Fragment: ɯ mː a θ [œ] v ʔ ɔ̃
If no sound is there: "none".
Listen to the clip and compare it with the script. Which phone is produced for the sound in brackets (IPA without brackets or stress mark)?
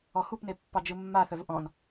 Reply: œ